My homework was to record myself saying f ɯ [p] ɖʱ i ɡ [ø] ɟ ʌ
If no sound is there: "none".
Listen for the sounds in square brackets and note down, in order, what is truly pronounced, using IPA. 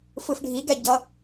f, ɛ

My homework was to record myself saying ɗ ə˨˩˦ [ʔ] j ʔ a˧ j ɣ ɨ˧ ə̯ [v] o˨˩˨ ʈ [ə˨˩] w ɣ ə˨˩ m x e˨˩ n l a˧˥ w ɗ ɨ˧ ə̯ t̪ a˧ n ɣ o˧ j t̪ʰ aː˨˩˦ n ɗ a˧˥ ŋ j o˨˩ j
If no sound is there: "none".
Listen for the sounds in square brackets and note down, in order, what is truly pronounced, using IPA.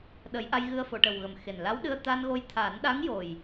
none, f, ə˨˩

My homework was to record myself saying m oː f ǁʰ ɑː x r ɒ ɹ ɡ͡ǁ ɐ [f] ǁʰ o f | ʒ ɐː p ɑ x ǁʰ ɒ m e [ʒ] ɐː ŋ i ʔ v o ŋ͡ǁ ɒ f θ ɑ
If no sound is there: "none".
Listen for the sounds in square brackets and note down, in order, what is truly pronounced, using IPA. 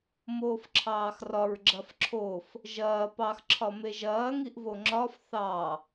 f, ʒ

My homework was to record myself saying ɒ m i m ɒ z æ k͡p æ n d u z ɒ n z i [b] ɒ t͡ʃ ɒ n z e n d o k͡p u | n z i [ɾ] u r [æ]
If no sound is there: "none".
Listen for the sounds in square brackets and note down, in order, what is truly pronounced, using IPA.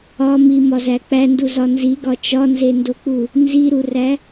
ɡ, ɾ, æ

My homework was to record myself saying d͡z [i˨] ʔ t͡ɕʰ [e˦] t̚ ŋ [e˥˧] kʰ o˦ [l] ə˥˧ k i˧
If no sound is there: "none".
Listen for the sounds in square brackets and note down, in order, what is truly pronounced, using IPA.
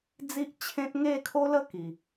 i˦, ẽ˦, e˥˧, l

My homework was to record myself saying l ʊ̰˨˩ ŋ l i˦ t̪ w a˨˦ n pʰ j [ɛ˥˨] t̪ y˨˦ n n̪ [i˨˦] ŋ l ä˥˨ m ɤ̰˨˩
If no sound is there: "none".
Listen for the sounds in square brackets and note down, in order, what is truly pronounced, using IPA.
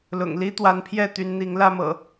ɛ˥˨, i˨˦

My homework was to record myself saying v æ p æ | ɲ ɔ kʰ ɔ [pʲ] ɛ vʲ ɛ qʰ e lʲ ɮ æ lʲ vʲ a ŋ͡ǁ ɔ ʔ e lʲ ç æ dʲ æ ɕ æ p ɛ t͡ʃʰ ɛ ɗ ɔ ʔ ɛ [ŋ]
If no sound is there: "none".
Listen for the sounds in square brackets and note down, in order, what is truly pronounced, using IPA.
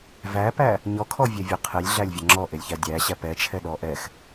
vʲ, x

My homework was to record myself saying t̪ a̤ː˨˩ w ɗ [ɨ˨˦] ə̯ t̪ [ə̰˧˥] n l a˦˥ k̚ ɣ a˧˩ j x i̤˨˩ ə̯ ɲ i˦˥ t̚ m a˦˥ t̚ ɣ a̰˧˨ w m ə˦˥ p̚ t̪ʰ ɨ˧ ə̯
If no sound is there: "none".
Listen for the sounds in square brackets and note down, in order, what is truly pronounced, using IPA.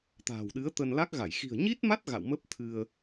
ɨ˨˦, ə˧

